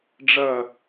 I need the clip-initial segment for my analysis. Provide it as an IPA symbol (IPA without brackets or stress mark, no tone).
ɖ͡ʐ